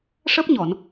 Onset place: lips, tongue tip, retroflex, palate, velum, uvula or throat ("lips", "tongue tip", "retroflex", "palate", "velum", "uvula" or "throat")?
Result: retroflex